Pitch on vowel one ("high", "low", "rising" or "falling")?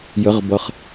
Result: rising